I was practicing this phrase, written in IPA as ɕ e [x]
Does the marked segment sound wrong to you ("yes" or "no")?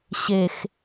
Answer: no